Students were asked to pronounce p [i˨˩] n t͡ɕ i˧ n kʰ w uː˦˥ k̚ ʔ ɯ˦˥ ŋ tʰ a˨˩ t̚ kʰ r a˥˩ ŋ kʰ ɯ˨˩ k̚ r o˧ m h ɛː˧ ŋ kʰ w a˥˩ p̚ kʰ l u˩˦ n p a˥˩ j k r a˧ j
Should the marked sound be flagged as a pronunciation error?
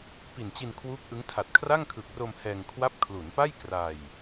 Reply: no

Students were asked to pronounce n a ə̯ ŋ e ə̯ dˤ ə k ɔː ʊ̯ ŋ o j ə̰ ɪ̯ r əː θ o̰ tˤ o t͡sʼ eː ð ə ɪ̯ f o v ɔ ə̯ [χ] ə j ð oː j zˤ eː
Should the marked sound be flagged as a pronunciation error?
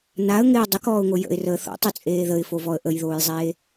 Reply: yes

